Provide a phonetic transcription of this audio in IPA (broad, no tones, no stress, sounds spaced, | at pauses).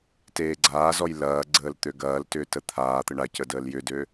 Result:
t eː ɡ͡ǀ aː z ɔ j l ɐː ɡ͡ǀ əː l t̪ ø ɡ ɐː l t ʏː t ə t̪ʰ aː t̪ ə ɳ a c ə d əː l j ʏ d ø